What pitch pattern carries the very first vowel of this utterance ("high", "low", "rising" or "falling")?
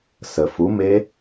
low